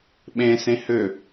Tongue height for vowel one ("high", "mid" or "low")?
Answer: mid